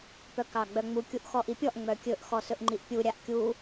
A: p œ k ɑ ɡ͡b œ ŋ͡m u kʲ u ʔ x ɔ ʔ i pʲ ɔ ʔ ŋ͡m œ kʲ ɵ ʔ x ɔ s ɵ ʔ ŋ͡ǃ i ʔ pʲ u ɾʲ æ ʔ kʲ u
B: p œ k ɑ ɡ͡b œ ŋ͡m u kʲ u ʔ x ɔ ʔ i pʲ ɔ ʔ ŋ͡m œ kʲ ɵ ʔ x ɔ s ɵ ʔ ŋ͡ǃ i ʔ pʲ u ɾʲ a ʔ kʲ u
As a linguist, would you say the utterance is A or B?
B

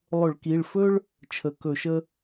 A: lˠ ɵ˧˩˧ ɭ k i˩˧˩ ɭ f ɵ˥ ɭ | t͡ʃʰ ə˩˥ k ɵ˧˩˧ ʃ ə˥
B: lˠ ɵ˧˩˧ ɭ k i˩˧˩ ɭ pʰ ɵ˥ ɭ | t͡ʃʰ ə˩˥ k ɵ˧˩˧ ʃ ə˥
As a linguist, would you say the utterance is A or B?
A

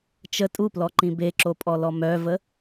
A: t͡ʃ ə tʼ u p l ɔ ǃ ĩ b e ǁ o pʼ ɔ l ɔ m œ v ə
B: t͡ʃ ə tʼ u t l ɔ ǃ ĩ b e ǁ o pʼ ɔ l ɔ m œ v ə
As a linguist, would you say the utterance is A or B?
A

